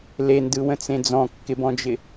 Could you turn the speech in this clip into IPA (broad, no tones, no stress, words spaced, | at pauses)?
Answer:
lendɯwə̃t͡sẽ d͡zɔ̃kːɪbɔ̃d͡ʒɪ